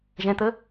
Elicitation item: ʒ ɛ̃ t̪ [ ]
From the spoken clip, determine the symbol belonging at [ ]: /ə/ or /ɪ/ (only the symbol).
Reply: ə